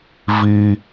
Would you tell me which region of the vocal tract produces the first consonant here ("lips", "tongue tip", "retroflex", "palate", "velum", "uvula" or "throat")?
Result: lips